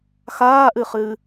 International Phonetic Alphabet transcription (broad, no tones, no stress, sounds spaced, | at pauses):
x aː ʔ ɨ χ ɨː